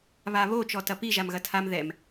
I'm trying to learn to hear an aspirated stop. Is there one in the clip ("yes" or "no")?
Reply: yes